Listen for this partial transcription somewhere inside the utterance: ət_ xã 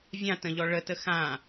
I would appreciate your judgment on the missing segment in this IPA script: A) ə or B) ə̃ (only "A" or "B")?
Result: A